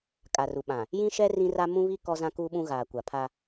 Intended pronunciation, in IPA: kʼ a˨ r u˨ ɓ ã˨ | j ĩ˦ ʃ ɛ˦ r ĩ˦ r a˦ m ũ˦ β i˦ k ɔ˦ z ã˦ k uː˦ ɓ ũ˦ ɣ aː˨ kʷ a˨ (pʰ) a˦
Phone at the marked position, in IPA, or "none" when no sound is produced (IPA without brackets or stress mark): pʰ